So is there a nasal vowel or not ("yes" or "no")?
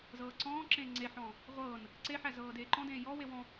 yes